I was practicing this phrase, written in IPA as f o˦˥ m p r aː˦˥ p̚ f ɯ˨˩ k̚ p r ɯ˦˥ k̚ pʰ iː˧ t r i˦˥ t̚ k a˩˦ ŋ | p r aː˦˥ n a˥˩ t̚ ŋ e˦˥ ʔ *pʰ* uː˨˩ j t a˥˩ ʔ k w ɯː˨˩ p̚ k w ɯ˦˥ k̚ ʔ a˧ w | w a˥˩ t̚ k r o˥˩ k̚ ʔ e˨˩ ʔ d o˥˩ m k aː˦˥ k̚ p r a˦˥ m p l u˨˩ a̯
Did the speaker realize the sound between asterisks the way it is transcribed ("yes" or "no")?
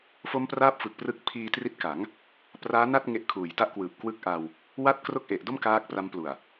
no